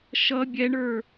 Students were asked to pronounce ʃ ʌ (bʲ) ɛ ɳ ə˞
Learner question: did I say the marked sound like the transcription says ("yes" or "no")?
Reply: yes